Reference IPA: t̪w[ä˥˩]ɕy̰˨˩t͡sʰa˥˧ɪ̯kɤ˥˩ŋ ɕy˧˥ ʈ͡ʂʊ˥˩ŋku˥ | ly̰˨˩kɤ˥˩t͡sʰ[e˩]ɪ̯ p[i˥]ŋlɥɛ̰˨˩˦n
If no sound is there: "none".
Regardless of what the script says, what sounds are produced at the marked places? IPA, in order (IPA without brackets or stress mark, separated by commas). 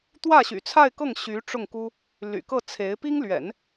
ä˥˩, e˧˥, i˥